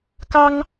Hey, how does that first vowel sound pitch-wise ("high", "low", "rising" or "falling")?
high